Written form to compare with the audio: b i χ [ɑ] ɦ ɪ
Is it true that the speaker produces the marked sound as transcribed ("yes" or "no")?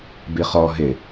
no